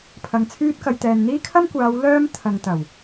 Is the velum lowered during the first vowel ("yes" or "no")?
no